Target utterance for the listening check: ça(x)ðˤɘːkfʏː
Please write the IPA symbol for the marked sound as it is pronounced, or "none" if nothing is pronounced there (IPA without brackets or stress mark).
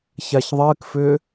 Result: ç